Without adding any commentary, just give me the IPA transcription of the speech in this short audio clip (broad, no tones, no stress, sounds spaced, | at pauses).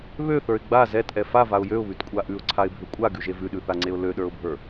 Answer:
β ø θ ə˞ ɪ̯ ɡ͡b a z ɛ t ʔ ɛ f a v a ʊ̯ j ø ʊ̯ β ʉ t kʷʼ a ʔ ʉ ʊ̯ ǀʰ a ɪ̯ bʱ ø kʷʼ a ɡ ʉ ʒ e v ʉ ɗ ʉ θ a ŋ͡ǀ e ʊ̯ l ø ɗ ə˞ ʊ̯ bʱ ə˞